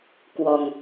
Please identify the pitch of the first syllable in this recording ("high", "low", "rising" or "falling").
low